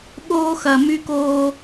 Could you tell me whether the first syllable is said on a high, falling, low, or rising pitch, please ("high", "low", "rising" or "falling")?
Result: high